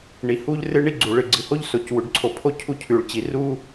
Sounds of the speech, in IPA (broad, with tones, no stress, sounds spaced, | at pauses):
ɳ i˩ h u˥ ʎ r ɨ˥ ɳ i˥ ɡ͡ǀ u˩ ɭ ɨ˩ ɡ͡ǀ ɨ˩ h o˥ ʎ s o˩ c w ʉ˩ ɖ ǀʰ o˩ pʰ o˥ cʰ u˥ cʰ ʉ˩ ɭ t͡ɕ i˩ r u˥